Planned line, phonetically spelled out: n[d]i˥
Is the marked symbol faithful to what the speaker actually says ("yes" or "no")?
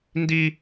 yes